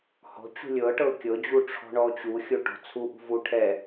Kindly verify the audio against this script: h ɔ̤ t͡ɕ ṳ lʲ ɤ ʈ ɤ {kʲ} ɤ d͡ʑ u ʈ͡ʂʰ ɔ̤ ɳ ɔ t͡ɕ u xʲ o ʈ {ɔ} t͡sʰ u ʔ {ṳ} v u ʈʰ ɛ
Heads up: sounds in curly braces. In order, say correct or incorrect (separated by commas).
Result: correct, incorrect, correct